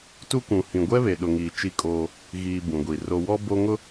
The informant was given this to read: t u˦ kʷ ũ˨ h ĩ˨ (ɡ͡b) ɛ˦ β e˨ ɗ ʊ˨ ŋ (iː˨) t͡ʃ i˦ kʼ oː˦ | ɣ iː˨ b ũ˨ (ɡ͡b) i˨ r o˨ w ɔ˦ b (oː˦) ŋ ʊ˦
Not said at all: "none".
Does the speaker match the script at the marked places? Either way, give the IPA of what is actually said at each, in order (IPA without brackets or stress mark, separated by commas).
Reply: ɡʷ, iː˨, ɡʷ, o˦